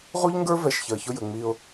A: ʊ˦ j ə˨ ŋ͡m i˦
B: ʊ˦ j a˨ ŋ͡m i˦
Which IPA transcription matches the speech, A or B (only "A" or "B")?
A